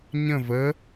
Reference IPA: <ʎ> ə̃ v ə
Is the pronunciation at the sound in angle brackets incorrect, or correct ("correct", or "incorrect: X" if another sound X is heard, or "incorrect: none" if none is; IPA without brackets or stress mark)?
incorrect: ɲ